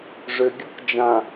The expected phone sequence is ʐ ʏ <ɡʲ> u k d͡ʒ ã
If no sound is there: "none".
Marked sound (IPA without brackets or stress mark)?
ɡʲ